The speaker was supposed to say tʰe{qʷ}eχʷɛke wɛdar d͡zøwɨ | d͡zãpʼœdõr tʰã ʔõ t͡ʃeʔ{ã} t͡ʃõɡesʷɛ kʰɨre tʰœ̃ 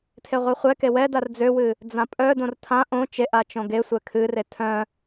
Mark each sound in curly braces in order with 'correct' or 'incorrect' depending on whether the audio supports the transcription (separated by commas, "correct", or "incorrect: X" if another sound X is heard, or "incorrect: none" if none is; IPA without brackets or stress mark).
incorrect: ʁʷ, incorrect: a